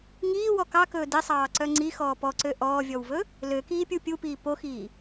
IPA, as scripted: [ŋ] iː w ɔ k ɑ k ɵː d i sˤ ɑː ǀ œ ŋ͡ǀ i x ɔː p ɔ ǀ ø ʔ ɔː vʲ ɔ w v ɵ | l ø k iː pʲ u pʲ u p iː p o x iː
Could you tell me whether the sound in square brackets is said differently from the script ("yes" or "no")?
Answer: no